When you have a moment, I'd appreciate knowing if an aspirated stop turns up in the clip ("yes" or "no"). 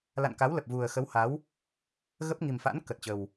no